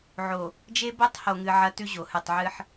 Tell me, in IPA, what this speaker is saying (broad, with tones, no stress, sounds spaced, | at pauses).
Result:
ʕ o˨ | d͡ʒ e˦ b o˦ tˤ h o˨ ŋ ɨ˨ ʕ ɐ˦ t ʉ˦ ʑ o˨ h ɨ˦˨ tˤ ʕ ɨ˦ ħ